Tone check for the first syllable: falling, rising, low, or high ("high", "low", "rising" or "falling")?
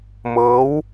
rising